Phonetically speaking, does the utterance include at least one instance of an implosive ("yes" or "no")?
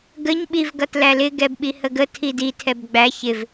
yes